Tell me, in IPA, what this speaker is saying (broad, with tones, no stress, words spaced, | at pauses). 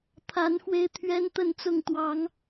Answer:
t̪ʰa˨˦n xwe˦ɪ̯t̪ʰɥɛ˦nt̪ə˥˨nt͡sʊ˥˨ŋ t̪wɑ˨˦ŋ